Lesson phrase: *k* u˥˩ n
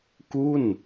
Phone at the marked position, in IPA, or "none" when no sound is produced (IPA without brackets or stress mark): k